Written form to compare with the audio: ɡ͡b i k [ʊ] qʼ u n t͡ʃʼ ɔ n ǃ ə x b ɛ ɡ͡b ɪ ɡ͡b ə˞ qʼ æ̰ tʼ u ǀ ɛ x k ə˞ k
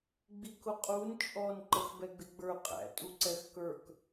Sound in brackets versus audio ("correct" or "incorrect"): correct